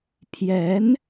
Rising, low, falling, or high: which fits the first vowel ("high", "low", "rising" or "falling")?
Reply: rising